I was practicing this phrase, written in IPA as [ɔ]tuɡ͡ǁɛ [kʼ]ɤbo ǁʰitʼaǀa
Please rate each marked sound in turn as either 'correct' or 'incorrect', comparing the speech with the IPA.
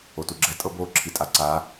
incorrect, incorrect

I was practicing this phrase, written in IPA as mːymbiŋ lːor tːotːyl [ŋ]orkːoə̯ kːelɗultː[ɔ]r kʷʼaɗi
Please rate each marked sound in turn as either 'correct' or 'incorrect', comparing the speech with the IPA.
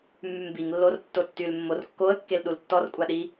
incorrect, correct

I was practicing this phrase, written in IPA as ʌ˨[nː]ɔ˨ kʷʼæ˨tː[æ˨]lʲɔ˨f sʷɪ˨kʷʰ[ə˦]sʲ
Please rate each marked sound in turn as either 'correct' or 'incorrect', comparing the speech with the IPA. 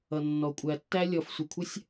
correct, incorrect, correct

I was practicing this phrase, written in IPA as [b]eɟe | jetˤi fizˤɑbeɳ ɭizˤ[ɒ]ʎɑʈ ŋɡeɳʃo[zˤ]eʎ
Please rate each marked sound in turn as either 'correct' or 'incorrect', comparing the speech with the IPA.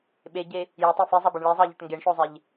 incorrect, incorrect, correct

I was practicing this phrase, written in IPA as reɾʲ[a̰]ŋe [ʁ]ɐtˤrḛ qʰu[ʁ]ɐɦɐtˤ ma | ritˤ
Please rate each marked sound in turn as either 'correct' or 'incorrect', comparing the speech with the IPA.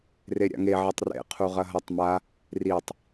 correct, incorrect, correct

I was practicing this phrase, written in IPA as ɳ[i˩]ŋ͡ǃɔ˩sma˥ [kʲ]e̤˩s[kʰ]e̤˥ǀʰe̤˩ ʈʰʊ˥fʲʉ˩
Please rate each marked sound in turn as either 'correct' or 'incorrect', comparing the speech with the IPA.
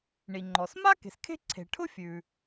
correct, incorrect, correct

